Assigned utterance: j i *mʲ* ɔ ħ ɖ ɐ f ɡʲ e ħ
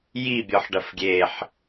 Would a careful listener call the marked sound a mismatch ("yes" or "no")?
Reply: yes